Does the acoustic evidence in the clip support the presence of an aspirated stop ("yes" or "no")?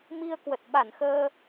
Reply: no